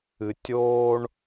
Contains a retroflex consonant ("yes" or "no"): yes